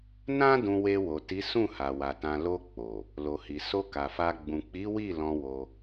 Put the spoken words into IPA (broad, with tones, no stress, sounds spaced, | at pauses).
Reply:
n ã˦ d ũ˧ w e˧ w o˨ t i˨˦ s ũ˦˨ h a˨ w a˨ t ã˨ l o˧ k͡p o˨ | l o˨ h i˨ s o˧ k a˨ f a˧ ɡ͡b ũ˨ k͡p i˨˦ w i˦˨ l ɔ̃˧ w o˧